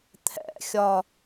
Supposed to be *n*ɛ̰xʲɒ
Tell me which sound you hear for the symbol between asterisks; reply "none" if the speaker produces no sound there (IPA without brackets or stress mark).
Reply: t̪ʰ